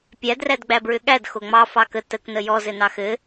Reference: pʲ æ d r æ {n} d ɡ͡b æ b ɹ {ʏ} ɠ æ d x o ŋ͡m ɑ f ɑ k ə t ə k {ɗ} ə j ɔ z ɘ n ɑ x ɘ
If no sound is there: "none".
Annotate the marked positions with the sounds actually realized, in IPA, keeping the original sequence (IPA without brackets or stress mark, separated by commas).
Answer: none, ʏ, n